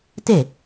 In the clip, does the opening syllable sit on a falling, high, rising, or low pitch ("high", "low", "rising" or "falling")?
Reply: falling